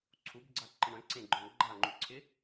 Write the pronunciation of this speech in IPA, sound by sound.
ǀʰubɡ͡ǀaǃɪ ɳœ̃ǀẽɡ͡ǃœ̃ ɡ͡ǃaŋ͡ǃuǀʰɪ

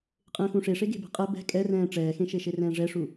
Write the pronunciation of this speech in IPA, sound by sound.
qʼẽːxũʂeʂe ɡe̤bɛ̤qʼɛ bɛ̤ kʼɛrɛ̃ː ʈ͡ʂɛːxẽʃe ʃerɛ̃ːʐɛʂu

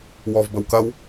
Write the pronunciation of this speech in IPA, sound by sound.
wɔvbəwkɐw

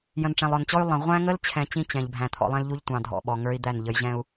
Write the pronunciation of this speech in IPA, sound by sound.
jə̃˨nʈ͡ʂɛ̃˨lˠɔ˨nt͡ɕɔ˦y̯ lˠə̃˨ ʁʷæ̃˦ŋə˦lt͡ɕʰɛ̃˨ t͡ɕĩ˦ t͡ɕɛ̃˨ʎbʱæ̃˨ t̪ʰɔ̰˨lˠɛ̃˦lʎu˦ʎ tʷɑ̃˨dʱɔ̰˨ɓɔ˨ŋə˞˦i̯ d̪æ˦˨nʎə˨˦jʑɛ̃˦u̯

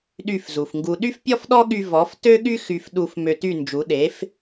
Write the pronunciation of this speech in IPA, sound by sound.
ɗy˥˩fzu˩fŋɡu˧ ɗy˥fpʲɔ˥fɗɔ˥ɠy˧ vɔ˩˥ftø˥ɠy˥ xy˧f ɗu˧f mø˧ty˥˩nd͡ʒu˩˥ ɗe˩˥f

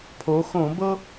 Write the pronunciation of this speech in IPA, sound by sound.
pʰo˩˧xõ˧˩˧ bɤ˧

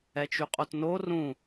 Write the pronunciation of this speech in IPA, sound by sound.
ɛt͡ʃyqʼotno rũ

